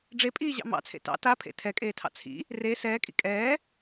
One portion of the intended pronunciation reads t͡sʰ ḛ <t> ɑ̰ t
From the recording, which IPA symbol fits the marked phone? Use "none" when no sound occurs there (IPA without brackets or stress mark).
t